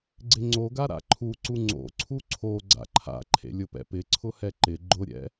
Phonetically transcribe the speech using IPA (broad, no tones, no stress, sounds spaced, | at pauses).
ɡ͡ǀ ɪ ŋ͡ǀ o ɡ a ɾ a̰ ǃʰ u ǀ u ŋ͡ǀ o̰ ǀʰ u ǀʰ o ɡ͡ǀ a̰ ǃʰ a̰ ǃʰ ḛ lʲ ʊ p ɛ̰ p ɪ ǀʰ ʊ h ɛ ǃ ɪ ɡ͡ǃ ʊ ɾʲ ɛ̰